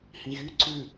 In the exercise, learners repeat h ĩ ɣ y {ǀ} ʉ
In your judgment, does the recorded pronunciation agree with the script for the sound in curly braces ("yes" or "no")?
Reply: yes